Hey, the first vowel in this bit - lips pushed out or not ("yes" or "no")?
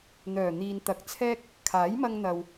yes